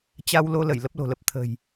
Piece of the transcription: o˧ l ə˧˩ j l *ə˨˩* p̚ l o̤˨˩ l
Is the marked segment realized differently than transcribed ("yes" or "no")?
yes